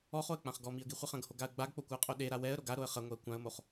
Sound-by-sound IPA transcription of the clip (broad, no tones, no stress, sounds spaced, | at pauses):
ɔ χ o ə̯ k͡p ã χ ɡ ɔ m i ə̯ ɡ i χʷ ɛ χ ɐ̃ ɡ h o ɡ a ə̯ ɡ͡b a ɡ k͡p o kʷ a ə̯ qʼ o ɗ e ɾ a w ɛ ə̯ ɾ o ɡ a ɾ o ə̯ χ ɐ ŋʷ ɛ ə̯ kʷ ã ə̯ m o χ